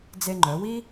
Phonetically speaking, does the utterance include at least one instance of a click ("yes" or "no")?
yes